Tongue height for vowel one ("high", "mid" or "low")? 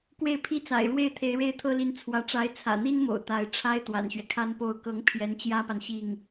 mid